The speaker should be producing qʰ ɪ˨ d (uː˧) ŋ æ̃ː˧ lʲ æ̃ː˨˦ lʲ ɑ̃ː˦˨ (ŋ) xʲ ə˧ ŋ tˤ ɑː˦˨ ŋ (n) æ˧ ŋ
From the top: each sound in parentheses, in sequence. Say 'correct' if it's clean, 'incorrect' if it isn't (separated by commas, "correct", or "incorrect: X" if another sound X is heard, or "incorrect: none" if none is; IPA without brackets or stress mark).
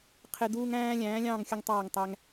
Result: correct, correct, incorrect: tˤ